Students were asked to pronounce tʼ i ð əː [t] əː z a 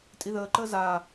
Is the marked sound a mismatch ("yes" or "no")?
yes